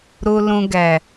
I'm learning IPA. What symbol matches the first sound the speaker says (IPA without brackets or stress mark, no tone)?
ɾ